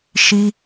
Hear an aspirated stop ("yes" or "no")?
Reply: no